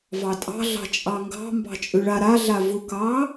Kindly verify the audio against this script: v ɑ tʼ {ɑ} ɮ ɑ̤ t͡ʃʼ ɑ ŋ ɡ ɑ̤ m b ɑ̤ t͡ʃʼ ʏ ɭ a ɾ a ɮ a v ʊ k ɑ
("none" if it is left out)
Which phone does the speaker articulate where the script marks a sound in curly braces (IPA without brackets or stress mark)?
ɑ̤